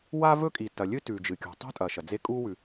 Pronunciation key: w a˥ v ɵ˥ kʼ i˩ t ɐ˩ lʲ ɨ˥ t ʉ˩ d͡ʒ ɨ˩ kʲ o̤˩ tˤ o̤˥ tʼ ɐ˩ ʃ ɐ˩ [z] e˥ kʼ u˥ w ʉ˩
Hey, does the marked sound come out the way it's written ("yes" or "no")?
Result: no